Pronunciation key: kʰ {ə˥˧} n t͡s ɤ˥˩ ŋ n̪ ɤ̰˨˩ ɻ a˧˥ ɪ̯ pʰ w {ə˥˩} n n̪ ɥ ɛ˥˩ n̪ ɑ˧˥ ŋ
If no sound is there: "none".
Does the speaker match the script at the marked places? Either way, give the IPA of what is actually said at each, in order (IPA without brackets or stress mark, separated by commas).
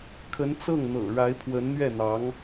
ə˧˥, ə˧˥